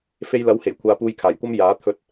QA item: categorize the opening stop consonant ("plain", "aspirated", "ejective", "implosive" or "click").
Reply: aspirated